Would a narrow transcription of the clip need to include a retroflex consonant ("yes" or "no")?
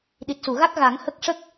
yes